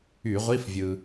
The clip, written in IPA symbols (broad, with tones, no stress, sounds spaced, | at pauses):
y˧˩˧ ʁʷ i˧˥˧ f vʲ ɯ˩